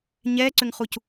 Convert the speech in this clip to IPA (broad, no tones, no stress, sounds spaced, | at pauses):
ɲ ɛː ǀ ʏ ŋ χ u c